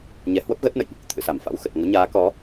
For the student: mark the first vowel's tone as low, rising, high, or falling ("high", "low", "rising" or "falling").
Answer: rising